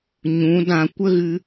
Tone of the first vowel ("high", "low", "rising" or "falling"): rising